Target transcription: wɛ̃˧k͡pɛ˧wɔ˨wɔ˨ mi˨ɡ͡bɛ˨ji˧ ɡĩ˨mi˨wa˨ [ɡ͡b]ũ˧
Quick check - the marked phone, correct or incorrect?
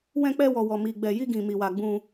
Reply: correct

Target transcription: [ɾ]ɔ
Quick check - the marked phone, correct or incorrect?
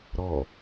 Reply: correct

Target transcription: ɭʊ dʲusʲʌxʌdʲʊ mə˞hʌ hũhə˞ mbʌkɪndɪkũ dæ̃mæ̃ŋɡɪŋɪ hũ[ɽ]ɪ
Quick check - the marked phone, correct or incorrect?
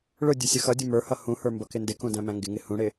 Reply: correct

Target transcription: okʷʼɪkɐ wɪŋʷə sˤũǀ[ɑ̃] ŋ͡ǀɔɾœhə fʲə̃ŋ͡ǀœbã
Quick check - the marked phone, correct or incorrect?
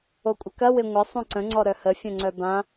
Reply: incorrect: ə̃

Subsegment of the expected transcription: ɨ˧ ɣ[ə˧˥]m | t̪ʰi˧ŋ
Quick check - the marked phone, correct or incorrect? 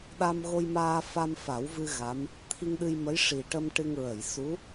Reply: incorrect: a˧˥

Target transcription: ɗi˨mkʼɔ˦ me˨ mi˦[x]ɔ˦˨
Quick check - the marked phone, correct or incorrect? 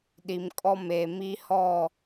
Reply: incorrect: h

